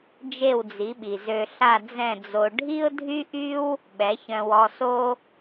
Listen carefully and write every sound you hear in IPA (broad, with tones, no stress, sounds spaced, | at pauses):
d͡ʒ e˥˩ w d͡z i˩˥ ɓ i˩ z ø˧ ɬ a˥˩ d͡z ɛ̃˥˩ d͡z o˧ ɖʱ i˥ ʊ̯ dʱ y˥ ʔ y˥ w | ɓ ɛ˩˥ ç œ̃˧ w ɔ˧ s o˥